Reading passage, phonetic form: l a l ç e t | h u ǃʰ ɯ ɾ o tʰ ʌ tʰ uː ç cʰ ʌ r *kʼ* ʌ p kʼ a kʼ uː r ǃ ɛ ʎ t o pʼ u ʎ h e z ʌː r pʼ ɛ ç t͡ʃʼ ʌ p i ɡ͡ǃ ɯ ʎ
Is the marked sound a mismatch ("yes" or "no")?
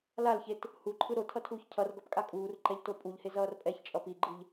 yes